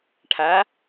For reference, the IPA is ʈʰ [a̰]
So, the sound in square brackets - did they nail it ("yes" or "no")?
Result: no